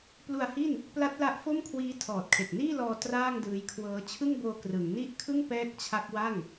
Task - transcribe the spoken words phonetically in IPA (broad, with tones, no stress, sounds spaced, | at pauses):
p l u˧ a̯ h i˥˩ n | p l a˦˥ t̚ l a˦˥ ʔ f o˥˩ m kʰ w iː˦˥ tʰ ɔː˨˩ t̚ kʰ e˨˩ k̚ n iː˥˩ l ɔː˧ t r aː˥˩ ŋ d ɯː˦˥ j kʰ w ɤː˦˥ t͡ɕʰ ɯ˥˩ ŋ b oː˧ k r ɯ˩˦ ŋ n i˥˩ ʔ kʰ ɯ˥˩ ŋ p ɛː˦˥ k̚ t͡ɕʰ a˦˥ k̚ w a˥˩ ŋ